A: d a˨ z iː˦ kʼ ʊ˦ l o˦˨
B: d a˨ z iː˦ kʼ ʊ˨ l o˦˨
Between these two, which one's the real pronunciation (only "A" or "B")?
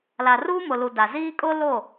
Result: A